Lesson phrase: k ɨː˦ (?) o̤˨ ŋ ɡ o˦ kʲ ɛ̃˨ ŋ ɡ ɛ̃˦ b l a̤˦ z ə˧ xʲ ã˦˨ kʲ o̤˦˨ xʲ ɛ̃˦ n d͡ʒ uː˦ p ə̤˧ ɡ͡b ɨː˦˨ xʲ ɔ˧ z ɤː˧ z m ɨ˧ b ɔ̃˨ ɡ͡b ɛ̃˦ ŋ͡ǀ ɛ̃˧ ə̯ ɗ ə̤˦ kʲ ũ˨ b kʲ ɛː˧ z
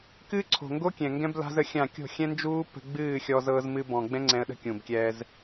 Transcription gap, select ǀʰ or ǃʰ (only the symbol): ǀʰ